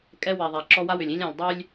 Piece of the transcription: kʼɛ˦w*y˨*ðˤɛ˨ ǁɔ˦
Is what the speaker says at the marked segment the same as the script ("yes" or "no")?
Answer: no